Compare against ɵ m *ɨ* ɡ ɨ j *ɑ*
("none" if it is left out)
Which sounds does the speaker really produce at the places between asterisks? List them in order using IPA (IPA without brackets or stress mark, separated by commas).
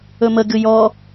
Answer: ə, ɔ